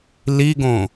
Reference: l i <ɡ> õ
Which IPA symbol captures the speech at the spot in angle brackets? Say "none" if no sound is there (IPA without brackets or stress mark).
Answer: ɡ